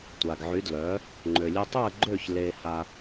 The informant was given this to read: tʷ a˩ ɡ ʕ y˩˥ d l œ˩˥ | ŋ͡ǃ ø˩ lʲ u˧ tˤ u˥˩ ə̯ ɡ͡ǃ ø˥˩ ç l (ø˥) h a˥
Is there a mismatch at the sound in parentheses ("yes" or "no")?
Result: yes